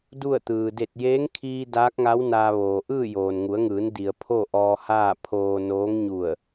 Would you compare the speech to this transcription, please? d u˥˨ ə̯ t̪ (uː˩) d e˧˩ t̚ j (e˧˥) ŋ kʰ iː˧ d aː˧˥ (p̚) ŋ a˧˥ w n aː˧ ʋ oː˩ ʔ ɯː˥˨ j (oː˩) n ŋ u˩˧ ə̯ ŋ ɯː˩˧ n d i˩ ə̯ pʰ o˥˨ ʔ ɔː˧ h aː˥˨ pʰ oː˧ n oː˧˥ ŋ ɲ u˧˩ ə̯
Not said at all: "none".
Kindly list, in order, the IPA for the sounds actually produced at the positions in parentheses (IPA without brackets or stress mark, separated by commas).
ɯː˩, eː˧˥, k̚, oː˩